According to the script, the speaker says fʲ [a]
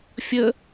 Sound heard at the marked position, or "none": ə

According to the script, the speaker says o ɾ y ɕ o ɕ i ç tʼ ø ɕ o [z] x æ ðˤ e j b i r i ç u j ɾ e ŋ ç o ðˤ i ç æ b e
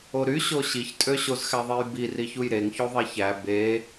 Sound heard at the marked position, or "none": z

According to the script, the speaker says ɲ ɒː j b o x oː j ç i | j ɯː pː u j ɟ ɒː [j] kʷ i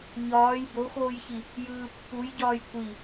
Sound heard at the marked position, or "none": j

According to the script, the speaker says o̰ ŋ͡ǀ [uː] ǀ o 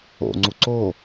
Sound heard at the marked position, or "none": u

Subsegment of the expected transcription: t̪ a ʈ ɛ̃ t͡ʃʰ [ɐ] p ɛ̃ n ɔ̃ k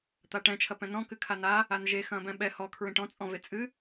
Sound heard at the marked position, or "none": ɐ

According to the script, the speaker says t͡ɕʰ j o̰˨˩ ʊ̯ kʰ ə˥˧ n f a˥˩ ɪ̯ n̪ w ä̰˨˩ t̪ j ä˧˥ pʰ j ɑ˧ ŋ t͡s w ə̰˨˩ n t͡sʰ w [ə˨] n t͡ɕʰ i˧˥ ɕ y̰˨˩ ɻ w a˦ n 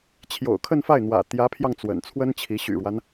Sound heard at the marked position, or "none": ə˥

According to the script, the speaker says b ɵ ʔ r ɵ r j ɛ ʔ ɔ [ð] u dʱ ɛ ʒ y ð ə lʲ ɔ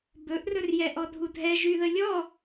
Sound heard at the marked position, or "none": dʱ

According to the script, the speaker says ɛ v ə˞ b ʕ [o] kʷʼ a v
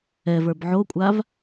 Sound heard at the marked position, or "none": o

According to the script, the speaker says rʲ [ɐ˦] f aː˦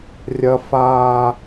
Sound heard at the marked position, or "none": ɐ˦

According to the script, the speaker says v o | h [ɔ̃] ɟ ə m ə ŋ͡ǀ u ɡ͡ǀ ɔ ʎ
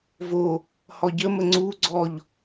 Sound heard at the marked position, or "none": ɔ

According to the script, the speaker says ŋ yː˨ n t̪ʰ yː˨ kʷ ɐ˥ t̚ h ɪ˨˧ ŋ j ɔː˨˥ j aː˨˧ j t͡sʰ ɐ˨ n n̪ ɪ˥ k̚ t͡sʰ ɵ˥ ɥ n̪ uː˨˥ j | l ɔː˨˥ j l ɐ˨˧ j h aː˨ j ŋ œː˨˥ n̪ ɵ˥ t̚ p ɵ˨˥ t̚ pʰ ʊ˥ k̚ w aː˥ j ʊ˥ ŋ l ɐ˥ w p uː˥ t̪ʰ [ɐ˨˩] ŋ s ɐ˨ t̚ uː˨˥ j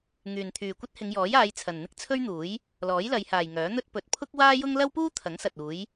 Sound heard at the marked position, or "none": ɐ˨˥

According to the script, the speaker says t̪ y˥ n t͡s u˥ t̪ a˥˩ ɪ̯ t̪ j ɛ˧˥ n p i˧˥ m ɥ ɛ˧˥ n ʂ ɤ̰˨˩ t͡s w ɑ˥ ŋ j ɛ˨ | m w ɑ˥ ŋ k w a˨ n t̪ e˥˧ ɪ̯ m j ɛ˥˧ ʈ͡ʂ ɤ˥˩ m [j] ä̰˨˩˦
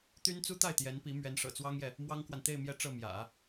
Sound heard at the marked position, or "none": j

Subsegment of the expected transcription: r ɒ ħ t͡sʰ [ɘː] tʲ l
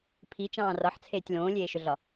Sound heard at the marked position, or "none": eː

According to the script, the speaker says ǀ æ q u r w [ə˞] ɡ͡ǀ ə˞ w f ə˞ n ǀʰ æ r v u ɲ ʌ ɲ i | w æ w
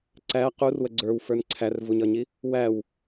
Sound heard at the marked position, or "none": ə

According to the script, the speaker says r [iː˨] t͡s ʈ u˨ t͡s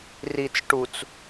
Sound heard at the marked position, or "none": i˨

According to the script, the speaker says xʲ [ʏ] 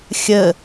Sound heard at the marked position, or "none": ə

